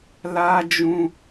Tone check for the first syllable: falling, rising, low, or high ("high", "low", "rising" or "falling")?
high